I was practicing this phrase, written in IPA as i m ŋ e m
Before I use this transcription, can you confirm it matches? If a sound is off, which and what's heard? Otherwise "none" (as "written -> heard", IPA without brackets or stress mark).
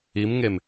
none